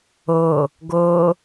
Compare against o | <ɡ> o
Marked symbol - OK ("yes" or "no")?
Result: yes